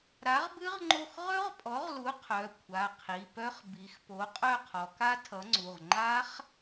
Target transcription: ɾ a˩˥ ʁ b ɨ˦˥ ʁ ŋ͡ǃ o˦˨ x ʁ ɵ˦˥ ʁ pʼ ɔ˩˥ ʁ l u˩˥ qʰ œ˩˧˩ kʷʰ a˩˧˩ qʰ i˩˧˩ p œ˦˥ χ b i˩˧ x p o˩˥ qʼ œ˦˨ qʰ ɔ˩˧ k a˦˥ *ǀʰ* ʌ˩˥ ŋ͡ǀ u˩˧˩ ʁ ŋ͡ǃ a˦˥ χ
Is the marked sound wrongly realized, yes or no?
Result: yes